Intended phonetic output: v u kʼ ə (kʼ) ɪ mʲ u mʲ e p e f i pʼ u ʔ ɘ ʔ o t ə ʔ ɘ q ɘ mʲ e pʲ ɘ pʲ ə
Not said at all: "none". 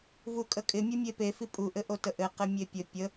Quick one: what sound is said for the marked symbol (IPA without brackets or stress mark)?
kʼ